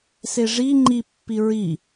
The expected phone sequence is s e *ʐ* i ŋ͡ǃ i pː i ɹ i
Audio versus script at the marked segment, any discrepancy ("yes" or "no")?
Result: no